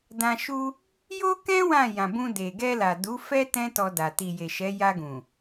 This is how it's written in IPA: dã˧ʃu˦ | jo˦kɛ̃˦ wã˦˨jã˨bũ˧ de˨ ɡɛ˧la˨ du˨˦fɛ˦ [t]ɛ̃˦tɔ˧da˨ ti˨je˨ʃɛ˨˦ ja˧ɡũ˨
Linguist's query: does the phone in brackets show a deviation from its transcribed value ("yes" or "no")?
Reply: no